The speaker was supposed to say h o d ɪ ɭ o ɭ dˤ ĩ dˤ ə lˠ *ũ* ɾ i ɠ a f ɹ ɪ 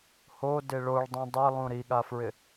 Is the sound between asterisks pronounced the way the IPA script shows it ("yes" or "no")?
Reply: yes